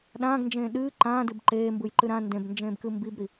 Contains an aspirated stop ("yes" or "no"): no